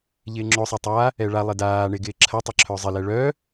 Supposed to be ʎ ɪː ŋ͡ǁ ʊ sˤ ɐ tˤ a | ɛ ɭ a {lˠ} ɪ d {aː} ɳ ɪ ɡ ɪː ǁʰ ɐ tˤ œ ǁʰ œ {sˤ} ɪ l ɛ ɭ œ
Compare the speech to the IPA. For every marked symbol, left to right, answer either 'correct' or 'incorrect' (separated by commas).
correct, correct, incorrect